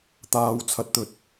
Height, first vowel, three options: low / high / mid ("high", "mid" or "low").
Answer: low